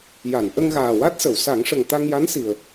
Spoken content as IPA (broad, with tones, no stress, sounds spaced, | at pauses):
j a˨˩˨ n ʔ ə˧ ŋ ɣ aː˨˩ w a˦˥ t̚ s ə˨˩˨ w s a˨˩˦ ŋ ʂ ə˨˩ ŋ t̪ a˧ ŋ j a˧˥ n s i˨˩ ə̯